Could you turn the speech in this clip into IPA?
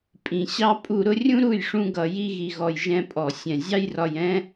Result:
pʼ ĩ˨ ɕ ɑ˦ pʼ u˧ ɾ ʊ˦ rʲ ũ˦ ɾ u˦˨ j ʂ ũ˧ ɡ ʌ˨ j i˧ ɣ i˨ ɣ ɔ˨ j ʒ ɛ̃˧ pʼ ɔ˨ sʲ ɛ̃˨ zʲ ɑ˦ j r ɒ˧ j ɛ̃˦

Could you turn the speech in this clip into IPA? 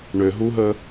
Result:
ɳ ø ɦ u ɦ ə

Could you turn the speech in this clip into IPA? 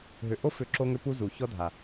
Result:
ɦ ʏ˧ ʔ o˦ f ʏ˦˨ ǁ o˦ ŋ ʏ˦ p u˦ z u˨ ç ɔ˦ dʱ a˨

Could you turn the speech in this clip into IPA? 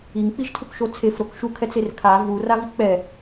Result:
i ŋ k͡p i ʒ tʰ u k ʃ o t͡sʰ e f ɾ o k ʃ u kʰ ɛ t͡s e r kʰ a v u r a v i k k͡p ɛ

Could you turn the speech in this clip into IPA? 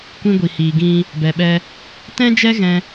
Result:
kʷ ĩ˦ ɡʷ i˨ h iː˨ ɡ ĩ˦ | b ɛ˨ ɓ ɛ˧ | t ɛ̃˦ d͡ʒ ɛ˦ ɣ ɛ̃˧

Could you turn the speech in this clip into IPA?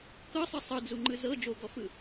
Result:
k ɤ sˤ ɯ sˤ ɯ d͡z u ŋ͡ǃ ɯ z ɤ d͡ʒ o ɡ ɔ f ɯ

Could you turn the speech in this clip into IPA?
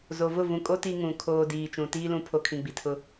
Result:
z o˨ v ʊ˦˨ v ũ˨ kʼ o˦ t i˦ ŋ ũ˨ kʰ oː˨ d iː˨ t͡ʃ ũ˨ t iː˦ l ũ˨˦ pʰ o˨ kʰ ĩ˨ ɡ͡b i˨ tʰ ʊ˦

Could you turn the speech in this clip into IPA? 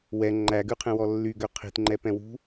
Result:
w ɛ ŋ͡ǃ æ ɡ ʉ qʰ ẽ w ɔ lː y ɡ ø qʰ i̤ t ŋ͡ǃ ɛ p ɛ̃ w ṳ

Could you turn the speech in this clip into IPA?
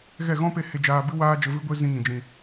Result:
ɣ ɛ˦˨ ɣ ɔ̃˦ p e˧ h e˧ d͡ʒ aː˧ b ɨ˦ w aː˦ d͡ʒ ə˧ v ɨ˦ ɡʷ e˦ z ĩ˧ ŋ ĩ˨ d͡ʒ ĩ˨

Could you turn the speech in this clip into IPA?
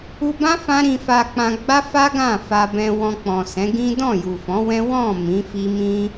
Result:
u˧ b ã˦ f ã˦ ɾ ĩ˧ f a˧ k͡p ã˧ ɡ͡b a˦ f a˦ ɡ ã˦˨ f a˧ b ɛ̃˧ w ɔ̃˧ k͡p ɔ̃˨ s ɛ̃˨˦ ɡ ĩ˦ d ɔ̃˦˨ j u˨ f ɔ̃˨˦ w ɛ̃˦ w ɔ̃˦˨ m ĩ˨˦ f i˦ m ĩ˦

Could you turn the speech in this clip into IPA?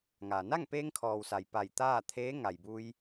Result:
ŋ a˩ n a˥˨ ŋ p eː˧ ŋ kʰ ɔː˩ w s a˩ j p a˧˩ j t̪ aː˥˨ t̪ʰ eː˧˥ ŋ a˩ j b u˧ j

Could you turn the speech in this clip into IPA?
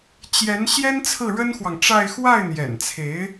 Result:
t͡ɕ j ɛ˧˥ n ɕ j ɛ˥ n t͡sʰ ɹ̩˥˩ ɻ ə˥ n x w ɑ˨ ŋ ʈ͡ʂ a˥˧ ɪ̯ x w a˥˩ ɪ̯ n̪ j ɛ̰˨˩ n t͡sʰ e˧˥ ɪ̯

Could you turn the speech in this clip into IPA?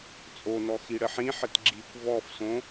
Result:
t͡sʼ o n ɔ x i ɽ ə ħ ĩ ħ ə t ɡ͡ǁ i kʷ v ɔ f s õ

